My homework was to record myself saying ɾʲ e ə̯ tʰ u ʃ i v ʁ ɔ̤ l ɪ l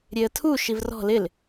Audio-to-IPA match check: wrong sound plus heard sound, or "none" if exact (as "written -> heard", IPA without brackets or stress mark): ʁ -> r